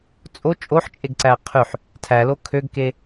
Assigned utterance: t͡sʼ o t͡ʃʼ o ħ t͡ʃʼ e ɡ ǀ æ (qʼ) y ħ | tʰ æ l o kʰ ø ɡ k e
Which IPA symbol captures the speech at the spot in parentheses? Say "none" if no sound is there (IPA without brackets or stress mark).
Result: qʰ